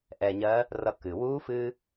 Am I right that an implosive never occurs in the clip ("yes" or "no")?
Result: yes